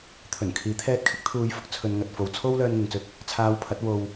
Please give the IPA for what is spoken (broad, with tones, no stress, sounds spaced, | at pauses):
t̪ʰ ɵ˨˩ n kʰ iː˨˥ t̪ʰ ɛː˧ t̚ kʰ ɪ˧ k̚ t̪ʰ uː˨˧ j f ʊ˧ k̚ t͡sʰ ɵ˨˧ n ŋ ɐ˨ t̚ f o˨ w t͡sʰ o˥ w l œː˧ n ŋ ɪ˨ ŋ t͡s ɵ˧ t̚ | t͡sʰ aː˧ w pʰ ɐ˨˥ t̚ w o˧ w